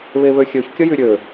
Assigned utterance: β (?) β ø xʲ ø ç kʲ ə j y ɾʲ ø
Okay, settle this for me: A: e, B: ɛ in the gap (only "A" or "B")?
A